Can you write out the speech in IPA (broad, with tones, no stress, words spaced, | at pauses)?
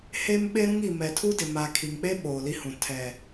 he˦m ɓe˦ɾũ˦ŋi˨ mɛ˨tʰu˦dɪ˨ ma˨ kʰi˨ŋk͡pe˦ ɓoː˨li˦hũ˨ tʰɛ˨